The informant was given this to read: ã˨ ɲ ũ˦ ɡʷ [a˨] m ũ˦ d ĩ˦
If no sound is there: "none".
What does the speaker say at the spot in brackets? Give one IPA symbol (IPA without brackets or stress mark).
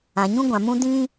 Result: ã˨